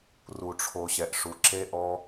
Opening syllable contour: low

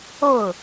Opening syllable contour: falling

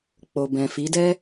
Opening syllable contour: low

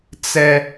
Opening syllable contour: high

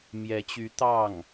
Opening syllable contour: rising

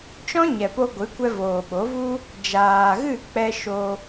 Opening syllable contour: high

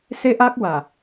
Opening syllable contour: high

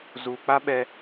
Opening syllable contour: low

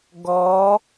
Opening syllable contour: rising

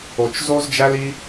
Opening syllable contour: low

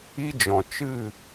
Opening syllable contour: high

